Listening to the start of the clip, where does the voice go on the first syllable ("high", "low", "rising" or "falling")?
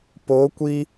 rising